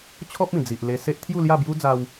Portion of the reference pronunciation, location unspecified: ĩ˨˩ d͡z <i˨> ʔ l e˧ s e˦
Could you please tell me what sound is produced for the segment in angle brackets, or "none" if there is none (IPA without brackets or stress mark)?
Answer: i˨